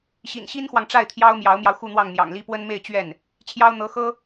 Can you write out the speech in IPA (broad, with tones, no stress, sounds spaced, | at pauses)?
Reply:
ɕ ḭ˨˩ n ɕ i˥ n x w ɑ˨ ŋ ʈ͡ʂ a˥˩ ɪ̯ t̪ʰ j ɑ˥ ʊ̯ m j ɑ˧˥ ʊ̯ m j ɑ˧ ʊ̯ x u˥˧ n̪ w ɑ˥˩ ŋ n̪ j ɑ̰˨˩ ŋ l i˥ p w ə˥ n m e˥˧ ɪ̯ t͡ɕ ɥ ɛ˥˩ n | t͡ɕʰ j ɑ˥ ʊ̯ n̪ ɤ˧˥ x ɤ˥